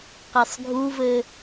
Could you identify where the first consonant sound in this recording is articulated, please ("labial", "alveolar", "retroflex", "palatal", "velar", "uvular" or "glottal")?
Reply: uvular